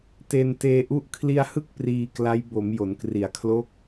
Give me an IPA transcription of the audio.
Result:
te˧n teː˧ʔu˦˥ʔ kʰli˧a̯hɯ˦˥k̚ priː˧ kla˦˥j bo˩˦m jo˩˦nkri˩˦a̯kʰlo˦˥k̚

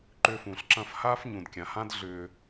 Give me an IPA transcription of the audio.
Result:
ǃʏː˧fũː˩ɬǁɐ̃ː˥˩f haː˥fɲũ˩dkʲã˩hã˥d ɮʏː˧

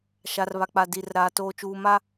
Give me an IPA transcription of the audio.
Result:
ʃa˨r βa˨k͡pa˨ di˨rɾaː˨ toː˨t͡ʃuː˨ma˦

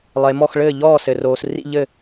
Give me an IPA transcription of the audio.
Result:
lˠe˨mɔ˦˨x ɭɘː˦˨ʎɔː˦˨sɘ˨roː˨s rḭ˦˨ʎɘ˦˨

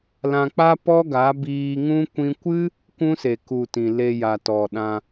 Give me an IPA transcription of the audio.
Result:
lã˧k͡pa˦ pɔ˦ɡa˨˦biː˧ŋũ˦ kʷĩ˧kʷɨ˦ | kʷũ˦se˨ ku˨ tĩ˨le˧ja˨ tɔ˨ɗã˧

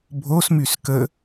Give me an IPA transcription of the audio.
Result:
bʱosmys kə

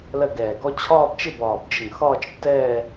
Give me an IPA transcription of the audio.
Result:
lɜ˥˧ɡɛː˧˩ɡɔ˥ t͡ɕʰɒː˥˧bt͡ʃɪ˥˧bɒː˧˩bd͡ʒɪ˧˩ŋ xɒː˥˧t͡ʃtːɛː˥˧

